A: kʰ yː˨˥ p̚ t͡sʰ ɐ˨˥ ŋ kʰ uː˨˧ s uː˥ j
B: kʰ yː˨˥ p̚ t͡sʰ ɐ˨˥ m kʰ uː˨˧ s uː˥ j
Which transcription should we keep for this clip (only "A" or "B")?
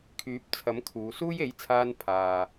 B